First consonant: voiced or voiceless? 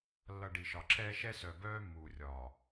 voiced